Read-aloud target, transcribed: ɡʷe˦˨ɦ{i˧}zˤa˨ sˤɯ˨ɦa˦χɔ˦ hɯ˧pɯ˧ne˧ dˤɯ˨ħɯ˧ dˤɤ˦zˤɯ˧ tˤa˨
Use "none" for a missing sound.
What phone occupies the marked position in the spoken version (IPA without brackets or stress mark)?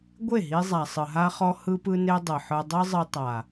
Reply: i˧